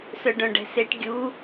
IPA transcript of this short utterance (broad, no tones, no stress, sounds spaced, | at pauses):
s œ ɖ œ̃ ɖ ɛ̤ s e ʈ ɡʲ u